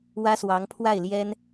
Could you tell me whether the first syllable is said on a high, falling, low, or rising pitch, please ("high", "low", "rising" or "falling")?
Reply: high